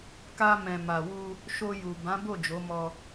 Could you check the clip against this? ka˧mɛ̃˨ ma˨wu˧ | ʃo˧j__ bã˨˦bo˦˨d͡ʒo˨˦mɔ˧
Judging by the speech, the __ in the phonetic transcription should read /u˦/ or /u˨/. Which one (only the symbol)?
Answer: u˨